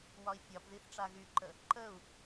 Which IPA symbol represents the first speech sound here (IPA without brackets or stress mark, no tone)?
w